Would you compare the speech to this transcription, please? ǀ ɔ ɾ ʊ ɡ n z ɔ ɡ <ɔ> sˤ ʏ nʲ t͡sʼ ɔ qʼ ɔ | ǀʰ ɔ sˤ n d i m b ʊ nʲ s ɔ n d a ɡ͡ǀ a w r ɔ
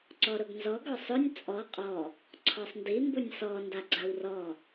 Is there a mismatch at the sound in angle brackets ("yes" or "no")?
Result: no